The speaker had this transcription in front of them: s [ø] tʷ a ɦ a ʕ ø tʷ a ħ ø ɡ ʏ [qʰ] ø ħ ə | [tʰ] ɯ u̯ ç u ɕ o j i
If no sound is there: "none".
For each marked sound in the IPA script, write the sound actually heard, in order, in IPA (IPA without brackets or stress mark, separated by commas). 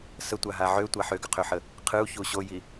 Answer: ə, qʰ, qʰ